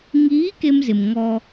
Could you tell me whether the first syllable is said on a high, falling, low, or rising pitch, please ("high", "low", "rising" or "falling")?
rising